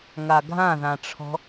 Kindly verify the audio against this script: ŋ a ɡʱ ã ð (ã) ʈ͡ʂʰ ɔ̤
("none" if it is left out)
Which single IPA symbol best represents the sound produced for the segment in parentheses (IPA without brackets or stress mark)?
ã